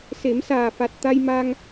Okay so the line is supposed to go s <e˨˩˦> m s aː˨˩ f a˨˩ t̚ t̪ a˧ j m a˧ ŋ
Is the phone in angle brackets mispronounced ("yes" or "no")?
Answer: no